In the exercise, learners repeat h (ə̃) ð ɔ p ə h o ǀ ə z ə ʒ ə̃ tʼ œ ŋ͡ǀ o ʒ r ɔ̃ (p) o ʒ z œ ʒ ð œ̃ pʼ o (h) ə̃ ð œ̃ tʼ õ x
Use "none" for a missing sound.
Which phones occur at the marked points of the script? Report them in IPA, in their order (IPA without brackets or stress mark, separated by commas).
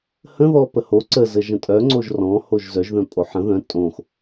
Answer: ə̃, h, ħ